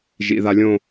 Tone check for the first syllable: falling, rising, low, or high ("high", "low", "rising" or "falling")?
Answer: low